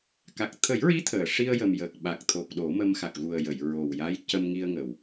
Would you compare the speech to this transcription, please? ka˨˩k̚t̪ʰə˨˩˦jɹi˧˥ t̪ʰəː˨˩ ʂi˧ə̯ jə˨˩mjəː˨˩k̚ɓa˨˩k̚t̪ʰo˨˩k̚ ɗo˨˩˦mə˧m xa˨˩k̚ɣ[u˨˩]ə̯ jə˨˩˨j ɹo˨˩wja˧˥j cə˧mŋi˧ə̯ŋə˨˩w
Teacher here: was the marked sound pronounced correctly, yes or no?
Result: yes